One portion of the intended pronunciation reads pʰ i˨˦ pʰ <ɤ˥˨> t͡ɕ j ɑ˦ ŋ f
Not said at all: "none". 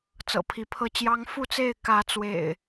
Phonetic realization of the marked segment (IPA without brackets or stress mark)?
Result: ɤ˥˨